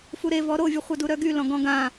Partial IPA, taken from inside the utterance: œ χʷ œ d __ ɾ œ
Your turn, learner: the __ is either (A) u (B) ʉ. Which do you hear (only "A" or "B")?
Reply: A